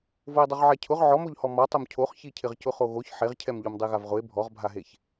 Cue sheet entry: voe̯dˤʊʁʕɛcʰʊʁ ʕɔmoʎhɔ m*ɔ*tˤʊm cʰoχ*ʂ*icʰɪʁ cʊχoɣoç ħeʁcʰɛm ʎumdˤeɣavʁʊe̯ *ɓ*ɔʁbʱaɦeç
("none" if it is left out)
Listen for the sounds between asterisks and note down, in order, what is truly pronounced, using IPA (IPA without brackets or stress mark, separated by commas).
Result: ɔ, ç, bʱ